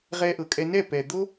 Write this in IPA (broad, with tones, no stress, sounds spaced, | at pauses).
ʁ ɛ˧ ʔ ɤ˨ kʼ ɛ˧ n ɛ˦˨ p ɛ˨ d̪ o˦